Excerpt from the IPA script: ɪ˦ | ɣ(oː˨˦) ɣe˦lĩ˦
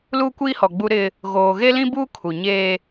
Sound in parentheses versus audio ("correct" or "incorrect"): incorrect